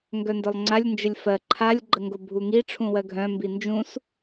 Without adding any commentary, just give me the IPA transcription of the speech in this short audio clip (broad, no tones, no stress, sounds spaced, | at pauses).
ŋ ɡ œ n d œ lˠ ŋ͡ǀ a lʲ n d͡ʒ ə lʲ f ɜ ǃʰ a lʲ ɡ͡ǃ ə ŋ ɡ o bʱ u ŋ i ʈ͡ʂʰ ũ w ɜ ɡʱ œ̃ m b i n d͡ʒ ũ s